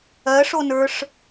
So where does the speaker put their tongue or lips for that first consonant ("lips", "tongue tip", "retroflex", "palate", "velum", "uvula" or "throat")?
retroflex